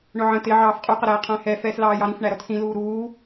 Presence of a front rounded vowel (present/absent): absent